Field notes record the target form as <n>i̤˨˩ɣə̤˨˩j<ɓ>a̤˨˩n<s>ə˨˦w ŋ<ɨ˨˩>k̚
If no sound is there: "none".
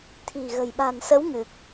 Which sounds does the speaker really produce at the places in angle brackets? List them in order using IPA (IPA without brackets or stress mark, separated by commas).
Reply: t̪ʰ, ɓ, s, ɨ˨˩